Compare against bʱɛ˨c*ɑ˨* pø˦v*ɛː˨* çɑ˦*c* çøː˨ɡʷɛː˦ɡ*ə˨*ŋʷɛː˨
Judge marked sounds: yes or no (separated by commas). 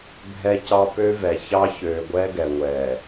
yes, no, no, no